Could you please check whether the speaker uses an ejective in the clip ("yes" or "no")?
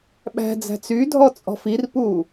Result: yes